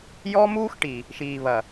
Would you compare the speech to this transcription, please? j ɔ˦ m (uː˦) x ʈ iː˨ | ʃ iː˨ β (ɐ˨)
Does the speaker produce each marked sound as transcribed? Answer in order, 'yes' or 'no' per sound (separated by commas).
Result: yes, yes